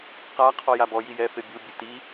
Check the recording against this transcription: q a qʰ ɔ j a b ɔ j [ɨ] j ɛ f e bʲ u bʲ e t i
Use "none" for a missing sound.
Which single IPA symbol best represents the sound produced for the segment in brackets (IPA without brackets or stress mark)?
i